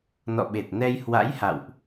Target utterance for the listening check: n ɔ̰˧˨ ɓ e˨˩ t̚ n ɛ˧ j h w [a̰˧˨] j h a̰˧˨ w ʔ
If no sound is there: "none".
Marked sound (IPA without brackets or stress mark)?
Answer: a̰˧˥